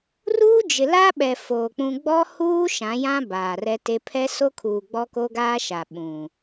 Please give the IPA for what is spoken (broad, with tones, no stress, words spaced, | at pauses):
ruː˦d͡ʒɪ˨la˦ɓɛ˨ foː˨k͡pũ˦ ɡ͡bɔ˦huː˦ ʃã˨˦jã˦ baː˨rɛ˦te˦ pʰɛ˦so˦kʰuː˨ ɡ͡bɔ˦ko˦ɡaː˦ʃa˨ ɓũ˨